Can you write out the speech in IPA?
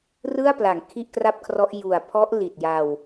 rɯ˥˩a̯pla˩˦ŋ kʰi˥˩ʔkra˥˩p̚kʰrɔ˦˥ʔ ju˨˩a̯pʰɔ˦˥ʔ li˨˩t̚ja˧w

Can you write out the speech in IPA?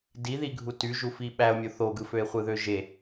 diði ɡʱutyʒufi ɓæo̯mʲo θoɡɯføe̯ χʷɯðøʒe

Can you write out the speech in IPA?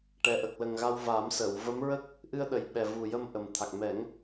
ʈɛ˨˩ʔə˨˩k̚ lə˨˩ŋɣa˧w va˨˩˦msə˨˩˨w və˧˥mɹə˦˥k̚ | ʔɨ˧ə̯ɗə˨˩j ɓɛ˨˩vu˨˩jə˧m ʔə˨˩mt̪ʰa˨˩k̚ mɛ˨˩˦ŋ

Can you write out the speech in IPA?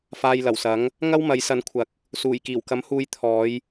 faː˧jlɐ˨˩wsɐ˨˥ŋ | ŋɐ˥wmɐ˨˥jsɐ˨˥n kʷʰɐ˨k̚ | suː˨˩jkiː˨˩wkɐ˨˥m huː˧jt̪ʰɔː˨˧j

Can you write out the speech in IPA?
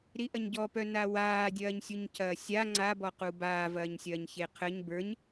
ɾiʔɐɲɟɔpœ nawaːdʲɐːɲ sʲuɲcʰɐːsʲa ŋ͡ǀabɔqu baːvɐːɲsʲɐːɲ çeqʰəɲ bə˞ɲ

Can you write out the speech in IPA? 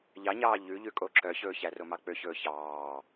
ʎɑɲɑː ʎʉʎʉkʼo ǁœçɵːçæ romɑk͡pøçɵː çɑː

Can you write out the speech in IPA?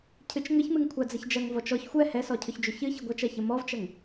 cʰɨt͡ʃŋəçmɨŋ kʷʰad͡zəçd͡ʒɐŋ vɔt͡ʃɔç xʷɛ hɛsɔcʰʏçd͡ʒʏ çɨ çəɡʷɐt͡ʃɐ çəmɔvt͡ʃɐŋ

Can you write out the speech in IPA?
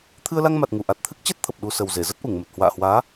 t̪ʰɨ˧ə̯la˧ŋma˨˩t̚ŋu˧˩ ʔa˨˩t̚t̪ʰɨ˦˥k̚t͡ɕɛ˦˥t̚t̪ʰə˨˩p̚ ɗu˧sə˨˩w ze˧˩zə˦˥t̚ʔu˧˩ŋmə˨˩t̚ hwa̰ː˧˨hwaː˨˦

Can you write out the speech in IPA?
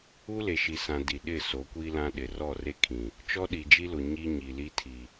u˦le˨ʃi˨sã˨ di˨ ɗɪ˦˨ so˨˦kʷi˦lã˦ ɗɪ˨ rɔ˦˨re˦kʰĩ˨ | t͡ʃɔ˦ɗi˨d͡ʒi˦lʊ˨ ɲi˦ɲi˨li˦tʰi˨

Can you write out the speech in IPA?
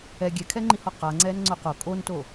ɛ ɡʲɛkʰɛŋ͡ǃihɔ qaŋ͡ǀɛːnŋ͡ǀo qo kʼonto

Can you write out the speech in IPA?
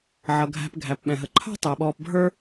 ʕʌ˩ɡʱæ̤˨p ɡʱæ˩pɓɛ̃˩ɦə˩ǃʰɑ̤˥ tˤɛ˩ɓɔː˨p bʱə˞˦

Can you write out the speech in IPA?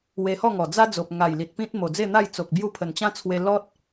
we˧hɔ˥˧ŋɔ˨˩d͡za˦ d͡zo˨p̚ŋa˨˩jli˨t̚ pĩ˦t̚mo˨˩d͡ze˥˧n̪a˥˧j t͡so˨k̚bju˦ pʰə˨˩nt͡ɕã˦t͡sʰwe˧ lɔ˦t̚

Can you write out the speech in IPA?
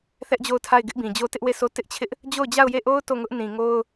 θɛ˦ʔd͡ʑo˦˨ʊ̯tʰa˦˨ɪ̯ ɡɪ˦ʔbĩ˨d͡ʑo˦ tɪ˦ʔwe˦˨sʰo˦ tɪ˦ʔt͡ɕʰɪ˦ʔ | d͡ʑo˦˨ʊ̯d͡ʑa˦˨ʊ̯je˦˨ʔo˦ʊ̯ to˦˨ŋʊ˦ʔ nĩ˨ŋo˦ʊ̯

